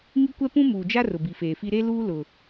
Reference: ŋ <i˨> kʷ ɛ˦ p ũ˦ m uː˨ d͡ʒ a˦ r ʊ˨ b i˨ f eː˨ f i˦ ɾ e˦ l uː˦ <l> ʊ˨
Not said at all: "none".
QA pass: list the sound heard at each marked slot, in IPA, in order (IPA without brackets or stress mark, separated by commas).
i˦, l